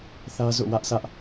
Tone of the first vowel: high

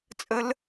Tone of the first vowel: high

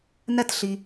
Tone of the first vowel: high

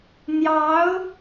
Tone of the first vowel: rising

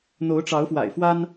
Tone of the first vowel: rising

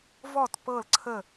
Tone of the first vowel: falling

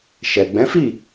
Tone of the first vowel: low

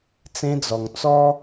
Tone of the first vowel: high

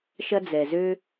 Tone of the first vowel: high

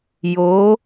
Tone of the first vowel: rising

